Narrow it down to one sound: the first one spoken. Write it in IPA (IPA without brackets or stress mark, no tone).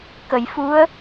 k